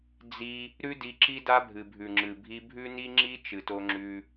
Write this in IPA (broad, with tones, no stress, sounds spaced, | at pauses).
d͡z i˦ | ɾ ʉ˦ d i˧ ǁ i˦ d a˦ bʱ ɨ˨ bʱ ʉ˨ ŋ͡ǁ ɨ˨ bʱ i˧ bʱ ʉ˦ n i˦ ŋ͡ǁ i˦ t͡ʃ ɨ˨ t o˧ ŋ͡ǁ ʉ˧